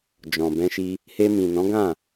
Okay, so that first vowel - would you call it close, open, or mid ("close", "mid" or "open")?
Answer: mid